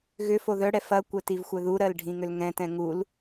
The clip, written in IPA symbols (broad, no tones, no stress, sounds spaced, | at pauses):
ɣ ʏ f o ð œ ɽ ɛ f ɐ kʷ œ t i v xʷ œ ð u ɾ ɜ l ɖʱ ĩ ŋ ʏ l ŋ ɛ̃ t ɛ̃ ŋ u l